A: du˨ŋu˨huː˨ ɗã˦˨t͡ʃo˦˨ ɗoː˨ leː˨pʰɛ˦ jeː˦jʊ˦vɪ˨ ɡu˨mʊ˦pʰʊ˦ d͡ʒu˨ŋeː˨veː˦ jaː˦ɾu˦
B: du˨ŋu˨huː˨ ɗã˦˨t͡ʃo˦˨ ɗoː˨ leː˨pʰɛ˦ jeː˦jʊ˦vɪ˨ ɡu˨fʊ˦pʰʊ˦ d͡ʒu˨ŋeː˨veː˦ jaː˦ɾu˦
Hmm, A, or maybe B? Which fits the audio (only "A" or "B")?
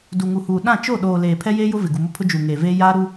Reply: A